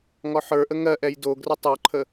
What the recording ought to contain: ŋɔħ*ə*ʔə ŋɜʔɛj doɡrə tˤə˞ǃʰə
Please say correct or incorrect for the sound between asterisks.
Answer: incorrect